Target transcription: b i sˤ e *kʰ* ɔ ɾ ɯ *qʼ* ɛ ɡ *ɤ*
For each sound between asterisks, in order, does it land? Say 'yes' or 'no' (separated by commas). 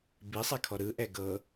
yes, no, yes